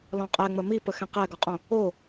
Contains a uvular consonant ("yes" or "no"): yes